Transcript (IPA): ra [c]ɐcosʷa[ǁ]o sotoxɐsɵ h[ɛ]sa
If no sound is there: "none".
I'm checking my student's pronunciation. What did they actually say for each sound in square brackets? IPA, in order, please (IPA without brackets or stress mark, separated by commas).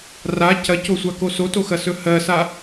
c, k, ɜ